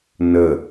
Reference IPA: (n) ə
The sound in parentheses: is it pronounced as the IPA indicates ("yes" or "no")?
yes